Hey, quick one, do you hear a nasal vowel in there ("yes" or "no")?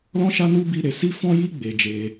yes